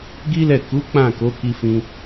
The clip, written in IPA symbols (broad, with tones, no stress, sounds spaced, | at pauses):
ɡ i˦ l ɛ˦˨ k u˨˦ k͡p ã˦˨ k o˨˦ k i˧ f ĩ˧